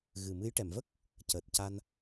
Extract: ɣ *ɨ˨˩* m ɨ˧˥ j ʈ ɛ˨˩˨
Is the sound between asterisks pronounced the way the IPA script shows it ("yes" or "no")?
yes